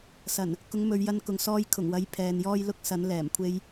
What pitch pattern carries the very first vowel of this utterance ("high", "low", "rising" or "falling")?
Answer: low